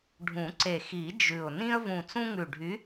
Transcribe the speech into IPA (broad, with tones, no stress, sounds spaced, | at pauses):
ɖʱ ũ˨˩˦ ǀ e˨˩ x i˨˩˦ d͡ʒ ʉ˨˩ ʊ̯ n ĩ˦ ə̯ v ũ˨˩ t͡s ũ˦ ŋ ʉ˨˩ ɖʱ y˨˦